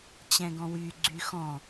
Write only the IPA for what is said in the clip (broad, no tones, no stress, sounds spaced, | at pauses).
t͡ɕ ɛ̃ ɡ ɔ̃ w y ɡ͡ǀ y x ɔ̃